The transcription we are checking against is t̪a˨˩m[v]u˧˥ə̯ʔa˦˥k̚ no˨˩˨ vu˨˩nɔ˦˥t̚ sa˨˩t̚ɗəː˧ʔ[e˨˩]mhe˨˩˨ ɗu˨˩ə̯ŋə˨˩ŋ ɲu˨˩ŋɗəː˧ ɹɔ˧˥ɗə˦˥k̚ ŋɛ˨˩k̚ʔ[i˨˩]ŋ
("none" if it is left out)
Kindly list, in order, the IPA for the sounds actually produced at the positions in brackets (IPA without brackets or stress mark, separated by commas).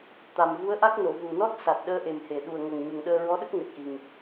v, e˨˩, i˨˩